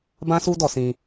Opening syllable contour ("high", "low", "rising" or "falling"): high